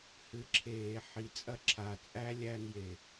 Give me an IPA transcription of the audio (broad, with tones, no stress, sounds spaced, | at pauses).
h ɨ˨˦ ǁʰ eː˧˩˧ ħ i˨˦ t͡sʼ ɐ˦ ǁʰ a˧˩ t͡sʼ æ˦ lʲ æ˦ n j e˧˩